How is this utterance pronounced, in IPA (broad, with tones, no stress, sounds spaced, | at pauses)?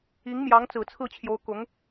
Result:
i˧˥ ŋ m j ɑ˧˥ ŋ t͡s ɹ̩˨˩ t͡sʰ ɹ̩˥˩ t͡ɕʰ j o˧˥ ʊ̯ k ʊ˧˥ ŋ